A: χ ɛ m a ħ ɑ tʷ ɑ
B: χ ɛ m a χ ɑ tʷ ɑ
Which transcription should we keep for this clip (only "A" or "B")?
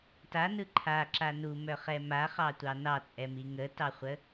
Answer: B